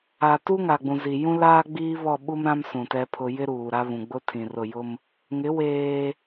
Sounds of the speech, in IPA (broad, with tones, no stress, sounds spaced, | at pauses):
a˨ t u˦ ŋ a˨ ɡ͡b ũ˨ z i˨ j ũ˦ l aː˦ ɡ͡b iː˦ β ɔ˦˨ ɓ u˦ m ɾ ã˦ m s ũ˨ t ɛ˦ pʰ ʊ˦ j ɪ˦ ɾ uː˨ ɾ a˦ β ũ˨ ɡ͡b ʊ˦ tʰ ĩ˨ r ʊ˦˨ j ʊ˦ m | ŋ ɪ˨˦ w eː˦